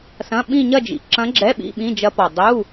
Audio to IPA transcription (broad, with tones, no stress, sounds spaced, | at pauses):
s ɐ̃˧˥˧ ɓ ĩ˥˧ ɲ ɐ˥˧ d͡ʒ ḭ˨˩ ǁ ɐ̃˧˥ ɡ͡ǁ ɛ˧˥˧ ɓ ḭ˧˥˧ ɓ ĩ˧˥˧ d͡ʒ ɐ˧˥ p ɔ˨˩ dˤ u˧˥˧